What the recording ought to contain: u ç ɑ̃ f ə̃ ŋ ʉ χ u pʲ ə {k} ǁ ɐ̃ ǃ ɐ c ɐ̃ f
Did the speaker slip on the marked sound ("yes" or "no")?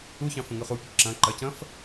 no